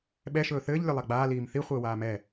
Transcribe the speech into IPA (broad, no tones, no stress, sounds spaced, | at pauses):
ɓ ɛ ʃ ɵː θ ɘː ʎ lʲ ɵ lˠ a ɡ͡b aː l iː m θ i χʷ ɘː w aː m ɛ